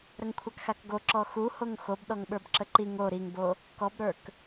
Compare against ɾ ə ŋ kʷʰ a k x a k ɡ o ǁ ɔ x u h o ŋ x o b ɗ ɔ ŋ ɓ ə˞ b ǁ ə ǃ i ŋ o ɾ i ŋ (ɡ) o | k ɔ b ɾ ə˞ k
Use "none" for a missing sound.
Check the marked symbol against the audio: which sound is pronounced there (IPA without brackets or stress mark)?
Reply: b